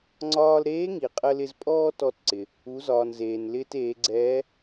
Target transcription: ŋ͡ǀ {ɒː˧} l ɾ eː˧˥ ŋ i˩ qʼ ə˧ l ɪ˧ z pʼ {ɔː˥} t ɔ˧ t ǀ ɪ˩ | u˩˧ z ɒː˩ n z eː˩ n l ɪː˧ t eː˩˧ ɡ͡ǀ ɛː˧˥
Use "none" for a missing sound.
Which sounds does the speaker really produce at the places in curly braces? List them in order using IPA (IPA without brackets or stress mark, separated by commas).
ɒː˧, ɔː˥